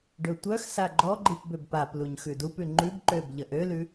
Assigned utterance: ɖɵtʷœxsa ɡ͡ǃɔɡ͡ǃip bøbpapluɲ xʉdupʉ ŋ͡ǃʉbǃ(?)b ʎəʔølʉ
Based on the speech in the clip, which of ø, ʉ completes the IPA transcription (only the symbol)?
ø